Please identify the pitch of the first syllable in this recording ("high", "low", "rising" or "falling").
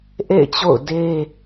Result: falling